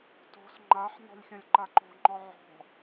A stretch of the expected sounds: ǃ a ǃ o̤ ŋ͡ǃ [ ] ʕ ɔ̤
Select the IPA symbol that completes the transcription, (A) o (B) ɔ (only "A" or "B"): B